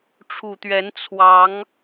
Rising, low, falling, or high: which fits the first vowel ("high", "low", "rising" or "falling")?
low